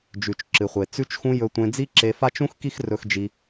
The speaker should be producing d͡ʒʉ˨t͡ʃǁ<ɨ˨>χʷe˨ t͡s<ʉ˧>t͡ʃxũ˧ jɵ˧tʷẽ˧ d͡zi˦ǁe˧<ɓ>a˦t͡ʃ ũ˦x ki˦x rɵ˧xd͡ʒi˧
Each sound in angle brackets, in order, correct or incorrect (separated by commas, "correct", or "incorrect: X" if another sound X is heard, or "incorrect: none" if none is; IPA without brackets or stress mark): correct, correct, incorrect: f